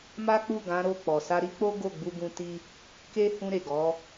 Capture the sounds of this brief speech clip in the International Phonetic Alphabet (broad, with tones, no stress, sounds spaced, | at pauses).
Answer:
m a˦ k͡p u˦˨ ɡ ã˨˦ ɾ o˦˨ k͡p ɔ˨ s a˧ ɾ i˦ k͡p o˦ ɡ o˦˨ ɡ͡b u˧ ɡ ũ˧ t i˦ | k e˦ h ũ˧ ɾ e˨ ɡ ɔ˨˦